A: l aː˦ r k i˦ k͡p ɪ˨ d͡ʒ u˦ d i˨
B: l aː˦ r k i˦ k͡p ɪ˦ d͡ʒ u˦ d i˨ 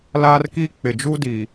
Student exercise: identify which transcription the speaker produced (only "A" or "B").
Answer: A